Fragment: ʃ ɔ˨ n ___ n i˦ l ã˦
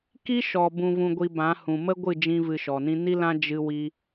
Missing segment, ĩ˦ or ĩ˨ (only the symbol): ĩ˦